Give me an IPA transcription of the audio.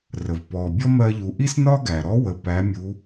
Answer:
r ə˩ v p ɔ˩ bʲ ɔ˥ m ɜ˧ ʎ u˩˧ ʔ i˥ s n ɒ˥ ɡ æ˩ ɾ ɔ˧˥ w ə˩ p æ˩˧ mʲ u˩˧

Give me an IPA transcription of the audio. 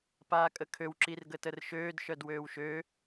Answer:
p aː kʼ ə kʰ ø w ǁ i r ɡ ə t ə r ʃ øː d ʃ œ d w øː w ʃ ø

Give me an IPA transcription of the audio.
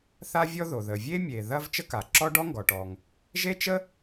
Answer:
θ a˥ vʲ ɔ˥ ð o˩ ð ə˩ vʲ e˥ mʲ e˩ ð ɐ˥ v t͡ʃ ə˥ k a˩ ǁ ɔ˥ ɖ ɔ˥ ŋ ɡ ɔ˩ ʈ ɔ˩ ŋ | ʒ e˥ t͡ʃ ə˥

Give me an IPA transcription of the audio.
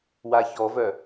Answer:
w a ç ɔ v œ

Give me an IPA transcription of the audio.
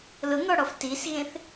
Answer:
l ʊ ŋ ɔ ɽ ɔ f t i s ɣ ẽ θ

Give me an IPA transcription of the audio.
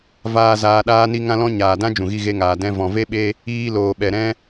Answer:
v aː˧ z aː˧ ɗ aː˦ n i˦ ŋ ã˧ l ɔ̃˧ ɲ aː˨ d ã˦ d͡ʒ ũ˨ ɣ i˧ ɣ e˧ ŋ aː˨ d ɛ̃˧ v ɔ̃˨ v e˦ ɓ e˧ | iː˧ l oː˨ ɓ ɛ˨ ɾ ɛ̃˦

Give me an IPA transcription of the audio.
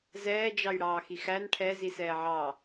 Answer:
z ɛː d͡ʒ ɑ j ɽ ɑː x i x æ n ʈʰ ɛ z i s ɛː ʕ ɑː

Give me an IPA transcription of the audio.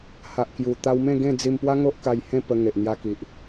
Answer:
h a˨ ʔ k j u˨˩ t̪ a˧ w m ẽ˥˧ ɡ ẽ˥˧ d͡z i˧ m p w a˦ ŋ o˦ ʔ k a˧ j h ẽ˥˧ p ə˧ ŋ e˨ ʔ n̪ j a˧ k i˨ ʔ

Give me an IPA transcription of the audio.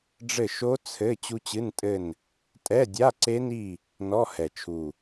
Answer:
ɖ͡ʐ ɘ˦˨ ʃ o˦˥ t͡sʰ ɘ˧˥˧ t͡ɕ u˦˥ t͡ɕ ɨ˧˥˧ n tʼ ɘ˦˨ n | tʼ ɛ˧˥˧ dʲ a˧˥˧ ǀ e˦˥ n i˦˨ | n ɔ˧˥˧ h ɛ˨˩ t͡ʃʰ u˨˩

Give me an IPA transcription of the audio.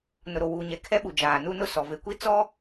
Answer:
n ʊ˨ ɾ o˨ w uː˨ ɲ ɛ˨ kʰ ɛ˦ ɓ u˨ d͡ʒ aː˨ n u˦ n ʊ˦ s ɔ˨ v e˨ kʷ i˦ t͡s ɔ˦

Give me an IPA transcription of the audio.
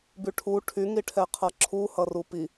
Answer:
b y ʈʰ u ʈʰ y ŋ i ʈʰ ɛ qʰ ʌ ǁʰ u h ʌ r u p i

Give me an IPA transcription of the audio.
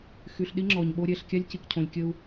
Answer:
x y˨ ɬ ɗ i˦ ŋ͡ǁ ɔ˨ ɲ ɓ o˦ ɾʲ ɛ˦˨ ɬ kʲ a˦ lʲ c i˨ k cʰ õ˨ lʲ kʲ ə˦ u̯

